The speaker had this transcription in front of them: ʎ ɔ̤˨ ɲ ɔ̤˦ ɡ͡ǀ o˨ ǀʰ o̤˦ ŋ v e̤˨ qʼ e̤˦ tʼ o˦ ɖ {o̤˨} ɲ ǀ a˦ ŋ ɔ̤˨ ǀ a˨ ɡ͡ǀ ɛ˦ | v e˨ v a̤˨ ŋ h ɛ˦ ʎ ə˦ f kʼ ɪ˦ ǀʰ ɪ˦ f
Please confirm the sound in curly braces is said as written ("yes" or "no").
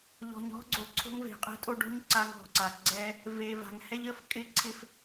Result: no